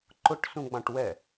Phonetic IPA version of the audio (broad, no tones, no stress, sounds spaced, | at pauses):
ǃ ʊ ʈ s ũ ɡ͡b ɑ̃ ʈ w ɛ